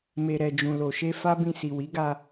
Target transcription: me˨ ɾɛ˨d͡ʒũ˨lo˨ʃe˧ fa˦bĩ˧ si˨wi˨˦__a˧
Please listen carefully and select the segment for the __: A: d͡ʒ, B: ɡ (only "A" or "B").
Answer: B